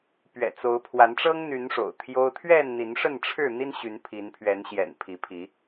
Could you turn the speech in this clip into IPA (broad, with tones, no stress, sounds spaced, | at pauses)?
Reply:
p ɥ ɛ̰˨˩ t͡s o˨˦ ʊ̯ pʰ w a˨˦ n ʈ͡ʂ ɤ˦ ŋ n̪ y˨˦ n ʂ o̰˨˩ ʊ̯ t̪ʰ j o˦ ʊ̯ t̪ʰ ɥ ɛ˥˨ n n̪ i˨˦ n ʂ ə˥˨ n ʈ͡ʂʰ ɻ̩˥˨ n̪ i˦ n ɕ y˨˦ n pʰ i˨˦ n pʰ ɥ ɛ˨˦ n ɕ j ɛ̰˨˩ n pʰ i˨˦ pʰ i˨˦